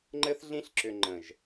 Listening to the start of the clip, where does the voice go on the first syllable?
high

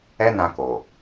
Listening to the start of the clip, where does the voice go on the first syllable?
high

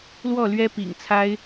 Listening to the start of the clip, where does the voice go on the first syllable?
falling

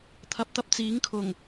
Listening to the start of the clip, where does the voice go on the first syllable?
rising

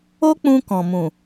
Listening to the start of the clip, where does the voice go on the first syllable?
high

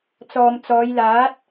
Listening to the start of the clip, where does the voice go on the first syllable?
low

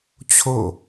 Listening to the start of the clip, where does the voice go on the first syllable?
falling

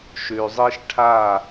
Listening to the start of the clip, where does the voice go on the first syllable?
low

